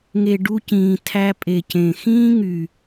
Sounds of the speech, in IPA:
ŋ e˨ ɖ u˧ c ĩː˨ tʰ æ˧ pʼ e˨ c ẽ˨ x ĩː˦ ŋ y˨

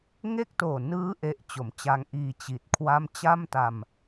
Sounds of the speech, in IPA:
ŋ e˥˩ k̚ t oː˨˩ n ɯː˦˥ ʔ e˦˥ ʔ t͡ɕ o˩˦ m t͡ɕ a˦˥ ŋ ʔ iː˧ t͡ɕ i˨˩ t̚ kʰ w a˥˩ m t͡ɕ a˥˩ m t a˧ m

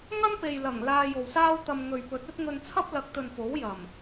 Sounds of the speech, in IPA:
ŋ ɐ˥ n p e˨ j l ɐ˨˩ ŋ l aː˧ j o˨ w s aː˥ w t̪ ɐ˧ m ŋ ɵ˨ ɥ p ɵ˨˥ t̚ ɵ˥ t̚ ŋ ɵ˧ n t͡sʰ ɐ˥ p̚ l ɐ˨˥ k̚ t̪ ɵ˨ n p o˨˥ w j ɐ˨˩ m

